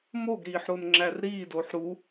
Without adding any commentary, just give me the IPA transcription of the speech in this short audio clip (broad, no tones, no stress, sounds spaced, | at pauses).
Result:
m o ɡ ɾ iː ħ ɾ o n ŋ͡ǁ æ r ɾ iː d oː ħ ɾ u